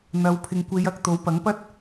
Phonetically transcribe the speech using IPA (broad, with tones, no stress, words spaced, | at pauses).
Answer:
n̪ɐ˨wpʰɪ˨ŋ kʷe˨˧jɐ˨k̚ t̪o˨˥wpɐ˨˥ŋpɐ˥t̚